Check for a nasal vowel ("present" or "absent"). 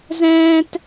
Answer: present